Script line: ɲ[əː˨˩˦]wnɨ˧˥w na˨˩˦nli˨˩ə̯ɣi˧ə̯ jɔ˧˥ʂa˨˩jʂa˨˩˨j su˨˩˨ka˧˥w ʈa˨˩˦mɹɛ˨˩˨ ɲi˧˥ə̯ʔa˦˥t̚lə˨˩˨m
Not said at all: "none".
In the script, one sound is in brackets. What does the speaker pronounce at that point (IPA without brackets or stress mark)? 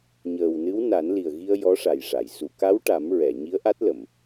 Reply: əː˨˩